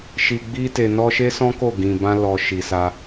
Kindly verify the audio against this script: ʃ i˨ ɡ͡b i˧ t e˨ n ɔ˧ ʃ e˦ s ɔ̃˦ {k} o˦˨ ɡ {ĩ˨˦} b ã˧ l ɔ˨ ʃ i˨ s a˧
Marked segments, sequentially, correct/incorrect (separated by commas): correct, incorrect